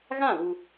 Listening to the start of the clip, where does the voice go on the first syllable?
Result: falling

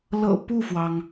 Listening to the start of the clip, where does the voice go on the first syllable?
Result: low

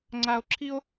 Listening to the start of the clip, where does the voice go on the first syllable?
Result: high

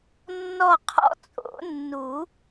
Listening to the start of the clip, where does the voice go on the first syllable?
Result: falling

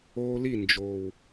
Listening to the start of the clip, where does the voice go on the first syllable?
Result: high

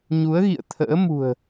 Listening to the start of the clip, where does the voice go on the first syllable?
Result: rising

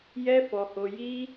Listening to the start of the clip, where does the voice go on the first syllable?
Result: high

